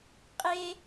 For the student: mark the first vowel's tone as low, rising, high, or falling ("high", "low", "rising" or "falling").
high